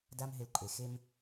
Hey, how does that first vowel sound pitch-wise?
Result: high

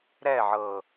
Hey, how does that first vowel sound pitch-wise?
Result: falling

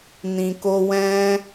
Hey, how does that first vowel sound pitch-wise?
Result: low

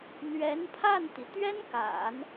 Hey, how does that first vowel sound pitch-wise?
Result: rising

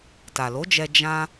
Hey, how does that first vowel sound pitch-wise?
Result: low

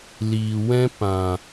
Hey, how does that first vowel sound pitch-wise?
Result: low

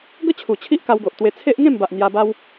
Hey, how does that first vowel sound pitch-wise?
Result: high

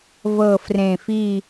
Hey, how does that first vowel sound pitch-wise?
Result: low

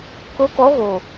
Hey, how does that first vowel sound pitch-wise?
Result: rising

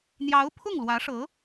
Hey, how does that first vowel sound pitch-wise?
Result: rising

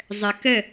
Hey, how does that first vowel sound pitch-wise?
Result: low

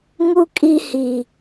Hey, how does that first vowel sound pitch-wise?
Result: high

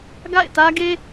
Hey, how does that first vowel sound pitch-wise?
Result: falling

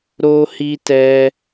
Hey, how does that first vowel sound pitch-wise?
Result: high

